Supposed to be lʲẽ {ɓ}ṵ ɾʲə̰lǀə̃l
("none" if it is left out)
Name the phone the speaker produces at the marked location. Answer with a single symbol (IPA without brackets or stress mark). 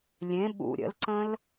ɓ